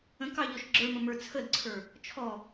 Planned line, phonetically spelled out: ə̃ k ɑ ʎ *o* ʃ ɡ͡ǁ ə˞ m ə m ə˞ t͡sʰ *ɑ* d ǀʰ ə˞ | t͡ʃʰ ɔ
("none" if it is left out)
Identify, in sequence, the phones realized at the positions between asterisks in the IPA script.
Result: ɔ, ə

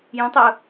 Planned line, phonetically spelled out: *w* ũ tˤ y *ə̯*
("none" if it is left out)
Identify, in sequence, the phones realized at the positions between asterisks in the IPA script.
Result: j, ʊ̯

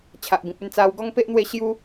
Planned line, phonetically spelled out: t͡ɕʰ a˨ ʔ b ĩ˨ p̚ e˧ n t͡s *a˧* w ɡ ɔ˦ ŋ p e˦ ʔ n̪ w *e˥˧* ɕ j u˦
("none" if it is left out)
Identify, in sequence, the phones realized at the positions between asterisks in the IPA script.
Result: a˧, e˥˧

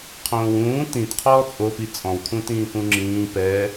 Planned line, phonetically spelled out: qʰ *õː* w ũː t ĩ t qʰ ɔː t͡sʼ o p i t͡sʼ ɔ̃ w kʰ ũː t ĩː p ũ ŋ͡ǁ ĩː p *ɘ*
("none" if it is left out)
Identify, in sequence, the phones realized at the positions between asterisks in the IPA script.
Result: õː, ɛ

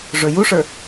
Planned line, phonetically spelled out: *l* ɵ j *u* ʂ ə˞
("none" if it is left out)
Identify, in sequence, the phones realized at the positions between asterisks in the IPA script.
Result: ʐ, u

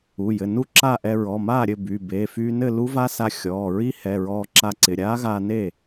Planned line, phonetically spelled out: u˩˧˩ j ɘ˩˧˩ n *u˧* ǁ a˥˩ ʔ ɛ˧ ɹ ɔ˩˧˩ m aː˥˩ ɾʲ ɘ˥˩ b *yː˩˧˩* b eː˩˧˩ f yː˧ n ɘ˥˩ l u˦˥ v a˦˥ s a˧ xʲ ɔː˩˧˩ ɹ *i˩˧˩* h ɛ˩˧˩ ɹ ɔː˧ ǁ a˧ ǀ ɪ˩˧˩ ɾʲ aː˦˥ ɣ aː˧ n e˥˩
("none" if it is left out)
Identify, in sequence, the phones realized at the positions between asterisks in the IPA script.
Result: u˥˩, y˩˧˩, i˦˥

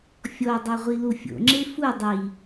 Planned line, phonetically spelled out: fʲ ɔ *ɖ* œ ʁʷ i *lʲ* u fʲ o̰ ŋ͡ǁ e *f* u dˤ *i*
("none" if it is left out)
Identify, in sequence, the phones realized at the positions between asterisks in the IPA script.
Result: dˤ, l, f, i

